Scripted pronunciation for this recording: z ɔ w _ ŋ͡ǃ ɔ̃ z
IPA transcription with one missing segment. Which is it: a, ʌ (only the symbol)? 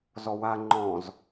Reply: a